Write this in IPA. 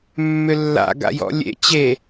mː ʏ lː a̰ ɡ a̰ j ɔ̰ lʲ ḛ t͡ɕ e

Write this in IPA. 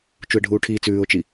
t͡ʃ u ɪ̯ ɖʱ uː ʈʰ iː t͡s ʉː ʊ̯ t͡ʃ i

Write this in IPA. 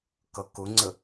k ʌ k ʊ ŋ͡ǀ ə

